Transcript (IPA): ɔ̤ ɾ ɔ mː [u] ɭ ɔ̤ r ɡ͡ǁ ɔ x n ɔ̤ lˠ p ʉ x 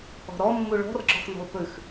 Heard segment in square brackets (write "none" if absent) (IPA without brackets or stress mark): u